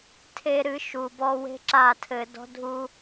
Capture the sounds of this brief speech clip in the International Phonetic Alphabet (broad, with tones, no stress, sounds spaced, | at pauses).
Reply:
tʰ e˧ ɾ ɨ˧ ʃ u˨ b ɔ˧ w e̤˦ ǁ a˦˨ tʰ ɘ˧ d ɔ̤˦ dʱ u˦